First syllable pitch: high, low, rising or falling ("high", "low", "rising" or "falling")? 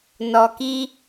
low